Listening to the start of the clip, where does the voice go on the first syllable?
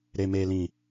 low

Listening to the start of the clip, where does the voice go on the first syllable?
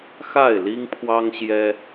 falling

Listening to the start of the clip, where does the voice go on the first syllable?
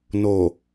low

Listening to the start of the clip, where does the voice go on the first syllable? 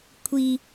high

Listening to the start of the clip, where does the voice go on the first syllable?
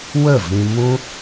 falling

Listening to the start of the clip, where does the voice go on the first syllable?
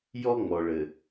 high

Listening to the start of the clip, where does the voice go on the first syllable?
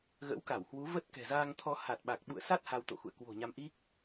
rising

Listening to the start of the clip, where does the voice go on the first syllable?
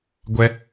high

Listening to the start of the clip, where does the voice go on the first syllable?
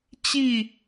falling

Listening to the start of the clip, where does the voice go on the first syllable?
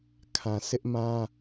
low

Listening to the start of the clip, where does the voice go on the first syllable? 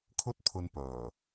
high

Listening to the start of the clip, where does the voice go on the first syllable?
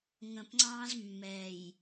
low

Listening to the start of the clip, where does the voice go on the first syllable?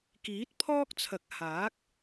rising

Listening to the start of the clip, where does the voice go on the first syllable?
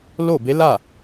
falling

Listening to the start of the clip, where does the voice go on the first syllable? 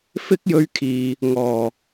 high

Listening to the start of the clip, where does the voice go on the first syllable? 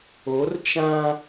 rising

